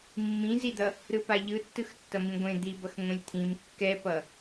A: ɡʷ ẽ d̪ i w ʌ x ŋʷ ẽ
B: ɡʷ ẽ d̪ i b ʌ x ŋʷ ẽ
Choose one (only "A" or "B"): B